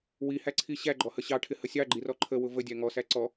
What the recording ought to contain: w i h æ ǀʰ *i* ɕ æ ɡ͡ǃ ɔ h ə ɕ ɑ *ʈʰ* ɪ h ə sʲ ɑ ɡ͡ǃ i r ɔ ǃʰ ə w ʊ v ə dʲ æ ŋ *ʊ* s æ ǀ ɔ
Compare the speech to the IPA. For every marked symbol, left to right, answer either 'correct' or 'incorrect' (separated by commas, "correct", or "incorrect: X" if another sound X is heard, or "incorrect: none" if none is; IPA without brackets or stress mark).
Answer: correct, correct, incorrect: ɔ